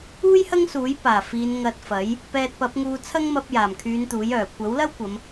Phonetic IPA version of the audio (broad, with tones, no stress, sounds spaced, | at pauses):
uː˥ j h ɐ˥ ŋ s uː˨˥ j p aː˨˩ f iː˨˧ n ŋ ɐ˧ t̚ f ɐ˨˥ j | p ɛː˧ t̚ p ɐ˨˥ p̚ ŋ uː˧ t͡sʰ ɐ˥ ŋ m ɐ˧ p̚ j aː˨˩ m kʰ yː˨˧ n t̪ uː˨˥ j œː˨˩ kʷ ɐ˨˥ w l ɐ˥ w kʷ ɐ˨˧ m